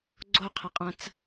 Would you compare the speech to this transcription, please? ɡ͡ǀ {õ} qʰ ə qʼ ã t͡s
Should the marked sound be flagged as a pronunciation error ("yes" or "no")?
yes